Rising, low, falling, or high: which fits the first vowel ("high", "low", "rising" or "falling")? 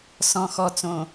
low